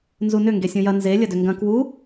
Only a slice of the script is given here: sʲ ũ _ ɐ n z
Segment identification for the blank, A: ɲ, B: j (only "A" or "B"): B